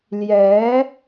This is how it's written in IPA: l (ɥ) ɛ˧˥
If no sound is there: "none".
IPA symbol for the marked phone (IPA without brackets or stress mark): j